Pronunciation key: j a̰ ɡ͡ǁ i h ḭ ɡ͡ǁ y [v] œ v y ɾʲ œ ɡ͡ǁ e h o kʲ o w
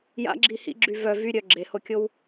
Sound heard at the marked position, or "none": v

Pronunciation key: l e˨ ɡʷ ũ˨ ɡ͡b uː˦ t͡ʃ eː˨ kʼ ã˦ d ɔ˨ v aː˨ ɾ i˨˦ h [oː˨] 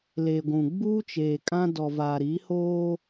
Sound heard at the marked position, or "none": oː˦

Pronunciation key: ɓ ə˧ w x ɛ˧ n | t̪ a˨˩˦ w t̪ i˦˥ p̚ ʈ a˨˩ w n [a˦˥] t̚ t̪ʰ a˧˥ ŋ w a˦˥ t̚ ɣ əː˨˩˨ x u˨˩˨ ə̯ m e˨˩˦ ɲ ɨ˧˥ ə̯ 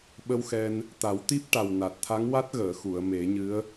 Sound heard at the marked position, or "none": a˨˩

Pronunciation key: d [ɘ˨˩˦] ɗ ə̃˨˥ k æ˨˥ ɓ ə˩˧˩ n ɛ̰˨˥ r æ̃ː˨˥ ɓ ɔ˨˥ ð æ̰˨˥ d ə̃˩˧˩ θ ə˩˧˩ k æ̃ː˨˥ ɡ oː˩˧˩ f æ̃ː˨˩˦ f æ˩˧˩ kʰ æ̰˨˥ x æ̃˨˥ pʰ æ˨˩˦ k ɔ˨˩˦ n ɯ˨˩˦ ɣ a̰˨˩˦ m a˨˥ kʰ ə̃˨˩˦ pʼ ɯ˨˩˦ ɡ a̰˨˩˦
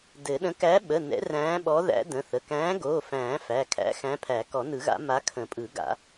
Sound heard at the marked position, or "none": ɘ˨˩˦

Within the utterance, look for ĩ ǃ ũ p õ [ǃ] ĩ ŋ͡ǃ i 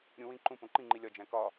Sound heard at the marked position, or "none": ǃ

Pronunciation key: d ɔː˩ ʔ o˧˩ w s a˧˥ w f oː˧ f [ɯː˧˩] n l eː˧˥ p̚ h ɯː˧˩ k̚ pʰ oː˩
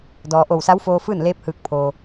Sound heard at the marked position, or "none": ɯː˥˨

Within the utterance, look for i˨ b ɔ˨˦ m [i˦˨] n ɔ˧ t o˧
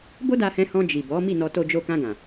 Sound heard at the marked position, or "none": i˦˨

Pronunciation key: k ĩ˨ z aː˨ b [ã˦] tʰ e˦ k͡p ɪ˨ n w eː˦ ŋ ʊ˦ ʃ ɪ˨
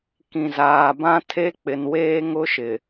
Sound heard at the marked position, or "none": ã˦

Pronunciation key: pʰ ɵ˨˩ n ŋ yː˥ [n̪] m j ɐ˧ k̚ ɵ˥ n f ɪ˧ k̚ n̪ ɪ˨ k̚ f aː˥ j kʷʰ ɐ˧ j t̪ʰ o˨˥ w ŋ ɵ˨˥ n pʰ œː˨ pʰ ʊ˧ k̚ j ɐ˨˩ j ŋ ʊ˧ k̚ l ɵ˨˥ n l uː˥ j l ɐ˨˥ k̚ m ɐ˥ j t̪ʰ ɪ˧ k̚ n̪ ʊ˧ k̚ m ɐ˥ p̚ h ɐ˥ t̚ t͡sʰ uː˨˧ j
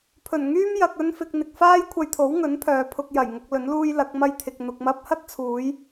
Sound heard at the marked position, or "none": none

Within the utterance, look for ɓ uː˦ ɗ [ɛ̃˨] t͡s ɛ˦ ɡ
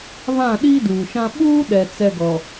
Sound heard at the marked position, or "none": ɛ˨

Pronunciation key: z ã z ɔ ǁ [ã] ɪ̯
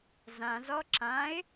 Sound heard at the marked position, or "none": ã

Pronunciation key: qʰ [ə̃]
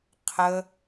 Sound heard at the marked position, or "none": ə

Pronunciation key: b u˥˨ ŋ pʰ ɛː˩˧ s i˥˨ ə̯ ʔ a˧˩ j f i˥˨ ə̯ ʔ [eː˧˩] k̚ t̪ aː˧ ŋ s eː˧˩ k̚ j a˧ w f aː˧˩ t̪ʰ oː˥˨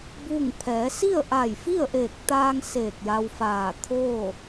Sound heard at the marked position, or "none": eː˧˩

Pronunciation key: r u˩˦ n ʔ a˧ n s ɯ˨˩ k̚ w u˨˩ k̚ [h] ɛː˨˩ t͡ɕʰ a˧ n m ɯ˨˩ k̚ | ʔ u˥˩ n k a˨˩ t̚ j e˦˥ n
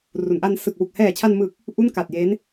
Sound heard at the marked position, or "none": h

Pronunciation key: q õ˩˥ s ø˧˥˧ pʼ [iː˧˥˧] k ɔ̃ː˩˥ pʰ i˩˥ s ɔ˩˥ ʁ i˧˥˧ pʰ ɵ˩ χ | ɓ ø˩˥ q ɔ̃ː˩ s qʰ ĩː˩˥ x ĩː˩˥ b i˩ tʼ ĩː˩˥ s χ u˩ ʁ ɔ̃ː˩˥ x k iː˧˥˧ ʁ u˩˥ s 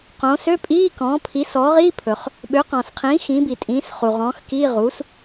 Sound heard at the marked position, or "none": iː˧˥˧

